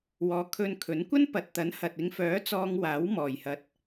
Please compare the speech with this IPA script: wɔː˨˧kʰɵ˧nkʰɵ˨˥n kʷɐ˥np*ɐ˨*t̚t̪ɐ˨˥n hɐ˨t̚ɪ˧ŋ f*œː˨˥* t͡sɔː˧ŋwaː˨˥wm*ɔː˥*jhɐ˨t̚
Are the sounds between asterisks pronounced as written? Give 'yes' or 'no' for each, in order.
yes, yes, no

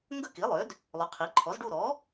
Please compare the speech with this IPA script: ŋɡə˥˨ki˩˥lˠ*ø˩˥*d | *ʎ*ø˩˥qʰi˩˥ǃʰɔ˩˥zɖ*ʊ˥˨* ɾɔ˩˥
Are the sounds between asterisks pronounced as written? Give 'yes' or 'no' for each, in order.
yes, no, no

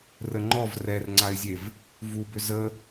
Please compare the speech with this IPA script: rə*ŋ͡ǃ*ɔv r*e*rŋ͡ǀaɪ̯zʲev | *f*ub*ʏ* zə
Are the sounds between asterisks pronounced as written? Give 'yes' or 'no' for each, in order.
yes, no, no, yes

